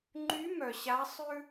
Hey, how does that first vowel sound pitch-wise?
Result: rising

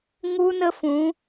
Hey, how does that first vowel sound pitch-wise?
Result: high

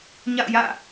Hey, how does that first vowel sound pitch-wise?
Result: falling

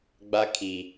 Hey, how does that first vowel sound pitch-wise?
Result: high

